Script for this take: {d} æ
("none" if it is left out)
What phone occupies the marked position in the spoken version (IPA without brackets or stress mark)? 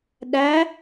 ɗ